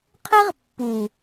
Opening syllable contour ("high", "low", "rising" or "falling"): high